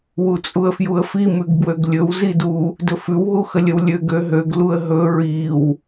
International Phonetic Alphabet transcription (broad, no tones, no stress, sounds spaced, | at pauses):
w u t͡sʼ u ə̯ f j u ə̯ f i m ʉ ɡ b w ø ɡ lʲ ɵ w z i d u | d ɵ f ʉ w ɦ u x ə lʲ ə w lʲ ø ɡ ø ɦ ø ɡ l u ə̯ ɦ ɵ ɹ i w